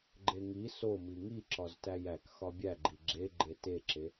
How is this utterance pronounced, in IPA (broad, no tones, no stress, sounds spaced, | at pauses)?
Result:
ɡ͡ǃ e ŋ i s o m i ŋ i ǁ ɒ z t æ j æ k x ɒ bʲ æ ɡ͡ǃ i ɡ͡ǁ e ɡ͡ǃ e t e ǁ e